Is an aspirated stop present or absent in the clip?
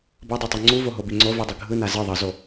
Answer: absent